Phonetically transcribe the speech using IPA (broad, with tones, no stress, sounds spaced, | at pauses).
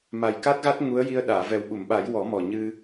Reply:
m a˨˩ j k a˦˥ t̚ ɣ a˦˥ t̚ ŋ u˧˥ ə̯ j i˧ ə̯ ɗ aː˨˩˨ v ɛ˨˩ w ɓ u˨˩˨ m ɓ a˨˩˦ j w ɔ˨˩˦ m ɔ˨˩ ɲ ɨ˧